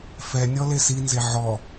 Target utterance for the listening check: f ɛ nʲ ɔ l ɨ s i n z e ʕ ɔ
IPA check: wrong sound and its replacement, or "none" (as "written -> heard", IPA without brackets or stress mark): ɨ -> e